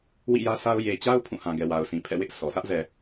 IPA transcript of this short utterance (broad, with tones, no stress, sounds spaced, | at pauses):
w ḭ˦˨ j ä˦ s a˦ ʊ̯ j e˨ t͡ɕ a˦ ʊ̯ pʰ ũ˦˨ h ã˨ ɡ ɛ˨ w a˨ ʊ̯ sʰ ĩ˨ pʰ ɛ̰˦˨ w ɪ˦ ʔ s ɔ˨ sʰ ä˦ ʔ z ɛ˨